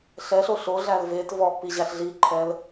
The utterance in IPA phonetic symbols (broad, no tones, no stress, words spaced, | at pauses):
ɬɛɬo ɬoɮæl vet vɔʔpi ʑæɬɮiǃʰɛl